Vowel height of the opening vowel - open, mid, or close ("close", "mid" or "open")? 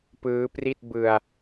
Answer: close